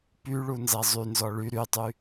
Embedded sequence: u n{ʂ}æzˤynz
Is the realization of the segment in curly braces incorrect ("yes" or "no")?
yes